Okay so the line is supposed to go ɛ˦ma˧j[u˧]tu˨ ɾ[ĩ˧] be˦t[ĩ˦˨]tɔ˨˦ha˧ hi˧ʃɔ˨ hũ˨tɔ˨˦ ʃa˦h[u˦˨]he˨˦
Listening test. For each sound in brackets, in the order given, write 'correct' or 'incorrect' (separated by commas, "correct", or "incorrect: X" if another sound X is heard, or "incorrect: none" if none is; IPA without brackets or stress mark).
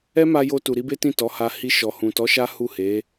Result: incorrect: o˧, incorrect: i˧, correct, correct